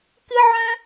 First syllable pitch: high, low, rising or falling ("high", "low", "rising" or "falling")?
high